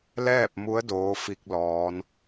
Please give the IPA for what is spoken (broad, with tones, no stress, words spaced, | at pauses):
lɛː˥˨p̚mu˧˥ə̯ doː˧˥fi˧k̚lɔː˩˧n